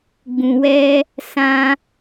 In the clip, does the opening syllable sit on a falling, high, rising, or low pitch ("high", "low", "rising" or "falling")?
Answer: low